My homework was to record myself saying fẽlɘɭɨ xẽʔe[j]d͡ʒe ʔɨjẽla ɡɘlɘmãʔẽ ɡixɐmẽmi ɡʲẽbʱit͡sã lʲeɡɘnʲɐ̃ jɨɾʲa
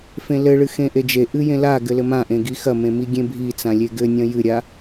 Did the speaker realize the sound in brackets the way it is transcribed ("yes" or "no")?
no